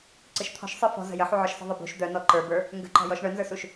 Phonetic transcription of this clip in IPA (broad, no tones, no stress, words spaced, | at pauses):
ǀɨʃt̪ʰɔ̤ʃ sˤɨ fɔ̤zə̤ jəħuʕɔʃ sə̤ðˤɨbṳʃ d̪œnɔ ǃə˞bə˞ | ŋɡə̤ǃɔ̤jɔʃ ɳœnzə˞suʃ